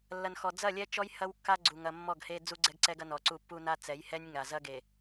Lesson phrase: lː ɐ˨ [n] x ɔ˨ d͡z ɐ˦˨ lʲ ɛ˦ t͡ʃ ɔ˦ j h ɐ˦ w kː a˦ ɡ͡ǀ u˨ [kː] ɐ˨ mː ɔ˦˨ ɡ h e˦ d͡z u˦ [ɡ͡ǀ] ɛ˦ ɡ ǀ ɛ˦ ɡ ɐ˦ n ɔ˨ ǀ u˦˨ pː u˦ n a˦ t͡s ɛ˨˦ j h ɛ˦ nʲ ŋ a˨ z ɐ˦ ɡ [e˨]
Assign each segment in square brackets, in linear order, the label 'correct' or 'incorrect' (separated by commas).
correct, incorrect, correct, correct